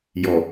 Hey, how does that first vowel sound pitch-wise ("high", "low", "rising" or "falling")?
low